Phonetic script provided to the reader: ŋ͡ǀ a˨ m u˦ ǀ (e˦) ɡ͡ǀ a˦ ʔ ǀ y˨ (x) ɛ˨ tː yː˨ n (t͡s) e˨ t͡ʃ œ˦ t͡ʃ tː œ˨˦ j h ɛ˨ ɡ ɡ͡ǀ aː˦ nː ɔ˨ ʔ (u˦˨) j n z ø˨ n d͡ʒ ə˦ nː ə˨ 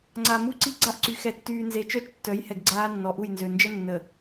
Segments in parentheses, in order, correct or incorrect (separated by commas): incorrect, correct, incorrect, correct